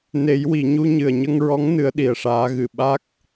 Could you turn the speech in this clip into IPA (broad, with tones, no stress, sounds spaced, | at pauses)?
n e˨˩˦ j w i˨˩˨ ɲ u˧ ɲ ɨ˨˩ ə̯ ɲ ə˧ ŋ ɹ ɔ˧˥ ŋ n ɨ˧˥ ə̯ ɗ i˨˩ ə̯ ʂ aː˧˥ ɣ ɨ˨˩ ɓ a˦˥ k̚